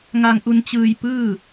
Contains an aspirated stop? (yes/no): no